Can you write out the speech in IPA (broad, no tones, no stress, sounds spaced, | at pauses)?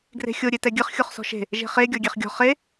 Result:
ɡ r e̤ xʲ o ɾʲ e t ɛ ɡʲ ɨ χ xʲ o χ s ɔ̤ ʃ e̤ | ʒ e̤ χ e ɡʲ ɔ ɡʲ e χ ɡʲ ɔ̤ χ e